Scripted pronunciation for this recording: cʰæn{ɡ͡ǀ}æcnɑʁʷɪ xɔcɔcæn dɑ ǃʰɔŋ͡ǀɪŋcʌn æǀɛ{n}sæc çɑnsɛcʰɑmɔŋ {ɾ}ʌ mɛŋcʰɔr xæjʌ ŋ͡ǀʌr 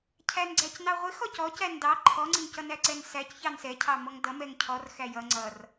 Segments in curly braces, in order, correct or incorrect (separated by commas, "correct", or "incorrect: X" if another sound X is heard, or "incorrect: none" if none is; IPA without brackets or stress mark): correct, correct, incorrect: d